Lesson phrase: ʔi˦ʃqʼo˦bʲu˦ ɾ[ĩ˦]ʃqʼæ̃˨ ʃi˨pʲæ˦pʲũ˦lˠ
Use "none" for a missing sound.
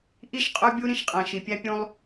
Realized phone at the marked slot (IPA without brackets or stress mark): ĩ˦